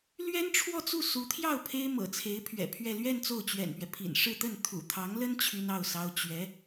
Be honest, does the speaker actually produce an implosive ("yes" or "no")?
no